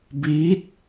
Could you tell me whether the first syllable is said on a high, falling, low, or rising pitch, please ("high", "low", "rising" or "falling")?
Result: rising